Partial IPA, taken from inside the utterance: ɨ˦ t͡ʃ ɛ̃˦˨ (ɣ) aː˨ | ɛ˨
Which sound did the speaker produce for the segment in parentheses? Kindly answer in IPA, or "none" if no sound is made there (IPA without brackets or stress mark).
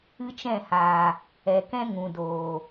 h